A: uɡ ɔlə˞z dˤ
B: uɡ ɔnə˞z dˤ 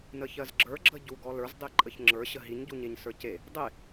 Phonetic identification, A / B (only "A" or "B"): A